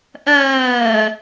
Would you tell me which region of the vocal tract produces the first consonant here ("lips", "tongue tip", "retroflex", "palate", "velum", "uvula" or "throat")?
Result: throat